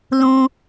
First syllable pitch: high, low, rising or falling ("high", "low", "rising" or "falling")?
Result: low